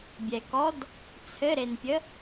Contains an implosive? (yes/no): no